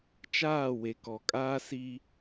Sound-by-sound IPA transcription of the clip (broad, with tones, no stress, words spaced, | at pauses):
t͡ʃaː˦˨we˨ kɔ˨kʼaː˦ si˦